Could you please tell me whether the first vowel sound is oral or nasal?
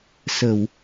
oral